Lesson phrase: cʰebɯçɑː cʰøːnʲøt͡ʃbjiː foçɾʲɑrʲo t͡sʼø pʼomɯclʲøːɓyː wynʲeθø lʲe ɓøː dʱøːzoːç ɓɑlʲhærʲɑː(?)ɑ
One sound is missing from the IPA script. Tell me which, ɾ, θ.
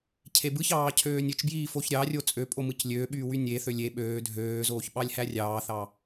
θ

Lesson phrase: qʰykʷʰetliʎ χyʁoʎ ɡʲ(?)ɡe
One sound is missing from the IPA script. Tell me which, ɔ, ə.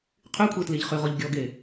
ɔ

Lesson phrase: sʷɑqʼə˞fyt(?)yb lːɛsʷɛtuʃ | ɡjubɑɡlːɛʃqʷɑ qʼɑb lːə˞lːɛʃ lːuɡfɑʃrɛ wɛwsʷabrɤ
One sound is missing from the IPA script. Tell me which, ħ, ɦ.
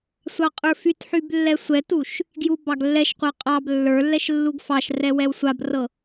ħ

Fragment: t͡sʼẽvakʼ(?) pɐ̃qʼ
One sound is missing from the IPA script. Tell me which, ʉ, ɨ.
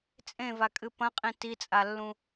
ɨ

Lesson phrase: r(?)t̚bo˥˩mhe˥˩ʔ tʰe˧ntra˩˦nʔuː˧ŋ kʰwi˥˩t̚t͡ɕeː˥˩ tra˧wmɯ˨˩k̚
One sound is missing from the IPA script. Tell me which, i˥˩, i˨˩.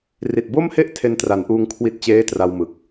i˨˩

